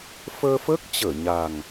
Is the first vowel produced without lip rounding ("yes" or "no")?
yes